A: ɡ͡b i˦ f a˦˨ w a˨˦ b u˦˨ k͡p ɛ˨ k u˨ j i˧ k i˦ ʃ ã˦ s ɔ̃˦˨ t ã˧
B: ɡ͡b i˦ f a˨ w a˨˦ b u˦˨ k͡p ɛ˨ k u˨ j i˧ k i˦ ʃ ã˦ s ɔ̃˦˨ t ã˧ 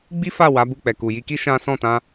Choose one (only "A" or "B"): A